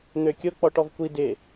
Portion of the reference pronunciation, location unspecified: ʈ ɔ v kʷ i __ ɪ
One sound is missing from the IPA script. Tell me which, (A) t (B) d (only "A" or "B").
B